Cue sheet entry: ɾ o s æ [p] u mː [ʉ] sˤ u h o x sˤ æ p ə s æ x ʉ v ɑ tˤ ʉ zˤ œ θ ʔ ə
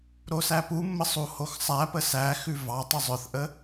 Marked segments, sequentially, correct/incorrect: correct, incorrect: ə

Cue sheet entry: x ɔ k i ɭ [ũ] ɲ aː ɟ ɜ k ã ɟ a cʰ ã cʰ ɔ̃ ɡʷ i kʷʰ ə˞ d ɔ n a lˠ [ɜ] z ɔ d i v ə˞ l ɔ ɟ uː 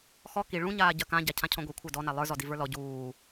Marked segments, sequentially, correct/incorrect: correct, incorrect: ə˞

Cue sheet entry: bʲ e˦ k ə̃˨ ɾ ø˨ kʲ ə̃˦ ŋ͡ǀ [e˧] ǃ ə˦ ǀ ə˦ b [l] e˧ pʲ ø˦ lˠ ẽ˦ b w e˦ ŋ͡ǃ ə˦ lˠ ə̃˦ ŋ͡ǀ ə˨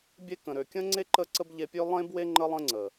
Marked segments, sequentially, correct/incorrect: incorrect: e˦, incorrect: ʎ

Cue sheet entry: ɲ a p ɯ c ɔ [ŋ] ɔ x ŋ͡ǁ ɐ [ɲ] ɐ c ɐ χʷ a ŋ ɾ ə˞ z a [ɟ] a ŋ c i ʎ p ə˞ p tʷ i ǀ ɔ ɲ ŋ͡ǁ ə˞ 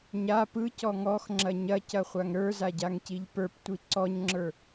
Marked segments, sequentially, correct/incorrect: correct, correct, correct

